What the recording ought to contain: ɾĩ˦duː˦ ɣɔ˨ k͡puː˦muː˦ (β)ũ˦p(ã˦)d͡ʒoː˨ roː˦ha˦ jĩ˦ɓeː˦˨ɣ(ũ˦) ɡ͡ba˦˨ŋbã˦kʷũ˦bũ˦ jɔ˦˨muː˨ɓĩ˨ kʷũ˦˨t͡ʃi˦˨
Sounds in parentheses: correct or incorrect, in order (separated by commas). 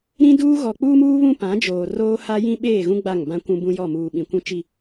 correct, incorrect, correct